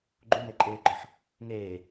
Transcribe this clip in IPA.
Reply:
ɡ͡ǃ u m e ǃʼ eː ɡ͡ǃ ɔ ħ | ŋ eː

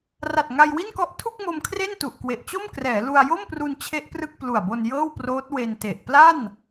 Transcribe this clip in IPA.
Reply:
r a˨˩ t̚ ŋ a˧ j w i˥˩ n k ɔ˦˥ ʔ tʰ u˥˩ k̚ m o˧ m kʰ r e˥˩ n t u˨˩ ʔ k w e˨˩ ʔ t͡ɕ o˥˩ m k r ɛː˩˦ l u˧ a̯ j o˥˩ m p r u˧ n t͡ɕʰ e˦˥ ʔ p r ɯ˥˩ k̚ p l u˨˩ a̯ b o˧ n j ɤː˥˩ w p r oː˦˥ t̚ w e˧ n t e˨˩ ʔ p l a˥˩ n

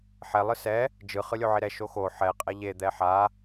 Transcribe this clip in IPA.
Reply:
ħ ɛ lˠ ɯ s ɛ | d͡ʒ ɯ χ ɯ lʲ o ʕ i ɾ ɛ ʃ o x o ħ ɛ qʼ ɛ ʎ e d̪ ɛ ħ a

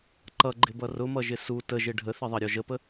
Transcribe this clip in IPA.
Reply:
ǃ ʌ ɡ͡ǃ ɪ b ʌ r ʊ m ʌ ʒ ɪ s u t ə ʒ ɪ ɖʱ ə θ ɪ ðˤ ʌ ɾʲ ɔ ʒ ə p ə

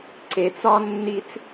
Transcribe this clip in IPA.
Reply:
ǀ e t͡s ɒ nː i t͡s

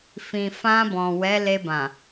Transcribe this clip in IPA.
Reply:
f ĩ˨ f ã˧ b ɔ̃˨ w ɛ˨˦ l e˧ b ã˨

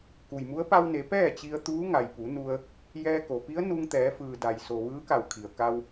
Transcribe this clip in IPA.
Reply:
k u˩ j m u˧˥ ə̯ p a˧ w n e˩˧ p ɛː˥˨ t͡ɕ i˧ ə̯ t̪ uː˧˥ ŋ a˩ j p u˩˧ n u˧ ə̯ | j ɛː˧ k o˩ p i˧˥ ə̯ n u˧ ŋ t̪ ɛː˩˧ f ɯː˩ d a˩ j s o˩ ʋ ɯː˧˥ k a˧˩ w kʰ i˩ ə̯ k a˧ w

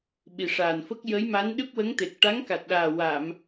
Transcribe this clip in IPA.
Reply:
ɓ i˨˩ ʂ aː˨˩ n f ə˦˥ k̚ j ə˧˥ j m a˧˥ n ɗ ɨ˦˥ p̚ w ə˧˥ ŋ t̪ e˨˩ k̚ ʈ a˧˥ ŋ k a˨˩ t̚ ɗ aː˨˩ w a˨˩˨ m

